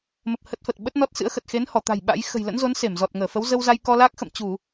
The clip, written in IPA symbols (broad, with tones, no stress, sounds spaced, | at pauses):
m ə˨˩ p̚ h ə˦˥ t̚ f ə˨˩ t̚ ɓ ə˦˥ t̚ n ɔ˦˥ t̚ s ɨ̰˧˥ ə̯ x ə˨˩ t̚ x e˨˦ n h ɔ˧˩ t̪ a̤˨˩ j ɓ a̰˧˥ j x ə̤˨˩ j l ə̰˧˥ n z o˨˦ n s e˧˩ m z ɔ˨˩ t̚ ŋ əː˧˩ f ə˨˦ w z ə˧ w z a˧ j k ɔ˧ l a˦˥ k̚ x ə̰˧˨ m t͡ɕ u˧˩˨